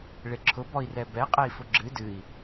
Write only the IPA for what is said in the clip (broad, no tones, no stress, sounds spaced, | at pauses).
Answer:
ɭ e ǁʰ ʊ b ɔ i̯ r ɛ b ɛ qʼ ɛ i̯ f ʊ ɡ͡ǁ ɨ d ɨ i̯